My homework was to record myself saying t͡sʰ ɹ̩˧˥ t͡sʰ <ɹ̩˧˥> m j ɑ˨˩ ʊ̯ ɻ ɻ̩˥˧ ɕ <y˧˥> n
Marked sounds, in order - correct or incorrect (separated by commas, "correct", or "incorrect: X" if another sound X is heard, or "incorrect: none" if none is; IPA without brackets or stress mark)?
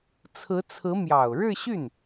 correct, incorrect: y˥˩